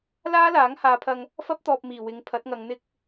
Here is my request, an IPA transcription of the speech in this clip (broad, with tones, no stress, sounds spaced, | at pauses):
l aː˥ l aː˨˥ ŋ h aː˨˧ pʰ ɐ˧ ŋ | f ɐ˥ p̚ t̪ ɔː˨ p̚ m iː˨˩ w ɪ˨˥ ŋ pʰ ɐ˨˥ t̚ ŋ ɐ˨˧ ŋ n̪ ɪ˥ k̚